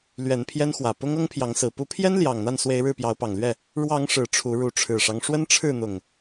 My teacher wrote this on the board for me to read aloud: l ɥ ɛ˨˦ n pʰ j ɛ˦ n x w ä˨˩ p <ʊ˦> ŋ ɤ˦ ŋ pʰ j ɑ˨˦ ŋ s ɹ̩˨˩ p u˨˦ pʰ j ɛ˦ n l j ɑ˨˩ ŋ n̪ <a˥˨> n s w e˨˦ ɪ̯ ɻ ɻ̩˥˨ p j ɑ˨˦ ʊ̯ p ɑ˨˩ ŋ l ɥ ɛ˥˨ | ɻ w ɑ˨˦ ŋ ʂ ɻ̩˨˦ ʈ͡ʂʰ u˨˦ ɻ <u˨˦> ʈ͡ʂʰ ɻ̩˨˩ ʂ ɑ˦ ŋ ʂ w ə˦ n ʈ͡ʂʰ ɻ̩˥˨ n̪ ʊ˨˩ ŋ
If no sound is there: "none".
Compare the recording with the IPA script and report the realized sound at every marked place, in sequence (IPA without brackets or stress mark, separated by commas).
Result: ʊ˦, a˥˨, u˨˦